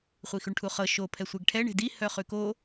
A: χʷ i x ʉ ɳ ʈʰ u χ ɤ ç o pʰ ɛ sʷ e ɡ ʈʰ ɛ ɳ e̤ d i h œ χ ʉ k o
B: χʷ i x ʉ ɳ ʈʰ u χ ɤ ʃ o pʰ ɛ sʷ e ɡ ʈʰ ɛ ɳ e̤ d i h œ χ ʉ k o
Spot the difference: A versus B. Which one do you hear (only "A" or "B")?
B